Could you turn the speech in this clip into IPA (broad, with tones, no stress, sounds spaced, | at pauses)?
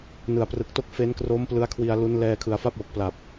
n ɯ˩˦ a̯ p r ɯ˨˩ k̚ t o˦˥ k̚ f e˦˥ n k r o˦˥ m p l ɯ˦˥ a̯ kʰ w i˧ a̯ l u˦˥ n l ɛː˧ kʰ ɯ˩˦ a̯ f a˥˩ p̚ w o˨˩ k̚ p l a˨˩ p̚